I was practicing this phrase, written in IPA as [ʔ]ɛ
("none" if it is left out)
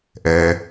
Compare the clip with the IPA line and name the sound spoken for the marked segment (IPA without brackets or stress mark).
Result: ʔ